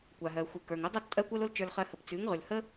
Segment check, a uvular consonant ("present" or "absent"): present